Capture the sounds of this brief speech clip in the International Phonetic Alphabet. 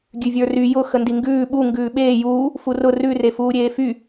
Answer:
ɡʲ ʉ vʲ ə˞ r y j ʊ x ə n d i ŋ ɡ ʉː ɓ u ŋ ɡ ʉː ɓ eː j uː | f u r ʊ r ʉ r e f uː ɾʲ eː f y

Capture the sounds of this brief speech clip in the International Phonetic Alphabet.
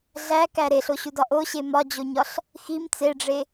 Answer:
ɮ æ k æ ɾ e ɬ o ɕ u d ɒ ʔ o ɕ e m ɒ d͡ʑ o ɲ ɒ ɬ | x i m t͡s e ɖ͡ʐ e

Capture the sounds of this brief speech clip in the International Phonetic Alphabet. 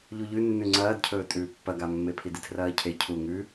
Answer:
ʎ u ʎ ʉ nː ʉ ŋ͡ǀ ɐː d cʰ ɵː tʼ ʉː pː ɐ ɡ a mː e pʰ i d i tʰ r ɐː cʰ e cʰ u ŋ ʉ

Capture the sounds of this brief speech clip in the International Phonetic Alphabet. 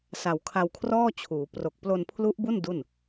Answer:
s a˨˩ w kʰ a˧ w kʰ r ɔː˥˩ t͡ɕʰ uː˩˦ p r o˨˩ k̚ p l o˧ n pʰ l u˦˥ ʔ b u˥˩ n d u˥˩ n

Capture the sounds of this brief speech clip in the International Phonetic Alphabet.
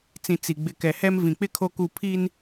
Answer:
t͡s ĩ˨ t͡s i˨ ɡ͡b ɪ˨ k ɛ˨ h ɛ˦ m v ĩ˨ k͡p ɪ˦ kʰ o˦ k u˦˨ pʰ i˦ n

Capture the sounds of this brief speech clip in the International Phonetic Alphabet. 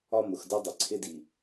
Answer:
ɒ˦ m ʊ˨ x d ʌ˦ dˤ ɪ˨ ǀʰ ɪ˦ d i˨

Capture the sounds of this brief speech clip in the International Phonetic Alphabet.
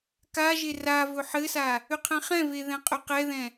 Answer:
k a ʒ e r a v ɵ ħ ɘ s a | ʏ qʰ ɛ̃ χ ɛ̃ v e ð ɛ̃ qʼ ɵ q ɛ ð ɛ̃

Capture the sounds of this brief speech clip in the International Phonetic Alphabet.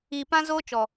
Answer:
iː˨ p ã˦ z oː˦ t͡ʃ ɔ˨

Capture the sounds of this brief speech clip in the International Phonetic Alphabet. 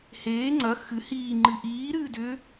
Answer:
h eː ŋ͡ǀ ɐ x ɨ h iː ŋ͡ǃ ɨ ʔ iː ɾ ɨː d ʏ

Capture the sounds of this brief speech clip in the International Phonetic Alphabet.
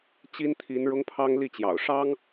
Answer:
t͡ɕ i˦ n t̪ʰ i˨˦ n ɻ ʊ˦ ŋ pʰ ɑ˦ ŋ l i˥˨ t͡ɕ j ɑ̰˨˩ ʊ̯ ʂ ɑ˦ ŋ

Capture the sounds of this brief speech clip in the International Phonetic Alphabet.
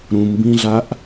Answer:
ɾ ũ m b ĩ ɮ a ʔ

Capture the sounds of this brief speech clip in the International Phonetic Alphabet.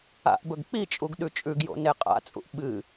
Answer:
a̰ ʔ b ɵ ɡ k͡p i t͡ʃʼ u ɡ ɗ ʉ t͡ʃʼ ʉ ɡ j o̰ n e qʼ a̰ t͡sʼ ṵ ʔ ɓ ɨ

